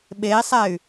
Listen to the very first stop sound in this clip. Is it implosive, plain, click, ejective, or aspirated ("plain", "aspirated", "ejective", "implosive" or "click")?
implosive